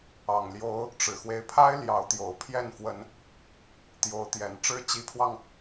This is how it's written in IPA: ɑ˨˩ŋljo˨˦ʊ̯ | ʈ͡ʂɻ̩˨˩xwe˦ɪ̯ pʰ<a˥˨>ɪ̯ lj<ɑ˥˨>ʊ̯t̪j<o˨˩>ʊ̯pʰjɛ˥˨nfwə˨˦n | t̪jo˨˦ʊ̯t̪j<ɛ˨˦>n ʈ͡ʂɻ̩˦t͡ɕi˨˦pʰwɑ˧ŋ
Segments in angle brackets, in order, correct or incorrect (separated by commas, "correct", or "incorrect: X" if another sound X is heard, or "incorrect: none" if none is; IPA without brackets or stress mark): incorrect: a˦, incorrect: ɑ˨˦, correct, incorrect: ɛ˨˩